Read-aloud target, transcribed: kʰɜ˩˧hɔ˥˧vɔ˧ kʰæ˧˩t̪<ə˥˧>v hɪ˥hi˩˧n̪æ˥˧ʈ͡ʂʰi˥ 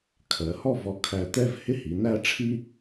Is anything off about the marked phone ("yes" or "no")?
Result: yes